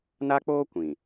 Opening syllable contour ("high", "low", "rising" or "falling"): high